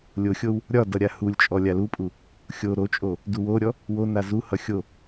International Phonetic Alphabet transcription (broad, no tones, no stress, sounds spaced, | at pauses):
lʲ o xʲ o w | ɾʲ ɒ d ʌ ɾʲ a h u lʲ t͡ʃʼ ɔ lʲ a l u pʼ u | xʲ o ɾ o t͡ʃʼ o | d u w o ɾʲ ɔ | w o n a z u h ʌ xʲ o